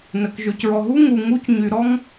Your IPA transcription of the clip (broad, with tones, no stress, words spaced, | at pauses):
nə˩kʒø˩c ɹɔ˨ɦu˥ ŋu˨ŋu˦cɲy˨ ɾɔ˥ŋ